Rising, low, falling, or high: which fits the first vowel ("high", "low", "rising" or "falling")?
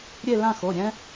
falling